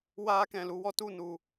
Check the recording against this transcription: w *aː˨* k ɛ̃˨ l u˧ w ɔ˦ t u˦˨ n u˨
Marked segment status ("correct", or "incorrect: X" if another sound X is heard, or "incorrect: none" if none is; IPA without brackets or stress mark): incorrect: aː˧